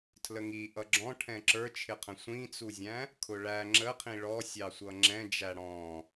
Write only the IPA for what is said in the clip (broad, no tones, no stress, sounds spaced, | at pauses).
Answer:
tʰ l ə ŋ i ʔ ʌ ɡ͡ǁ ɔ̃ ʈʰ ɛ̃ ǁ ə˞ t͡ʃʰ ɪ qʰ ə̃ sʷ ĩ t͡s u zʲ æ̃ | kʰ ʊ ɭ æ ŋ͡ǁ ə qʰ ĩ ɭ ɔ sʲ ɑ sʷ ʌ ŋ͡ǁ ɛ̃ d͡ʒ æ ɽ ɔ̃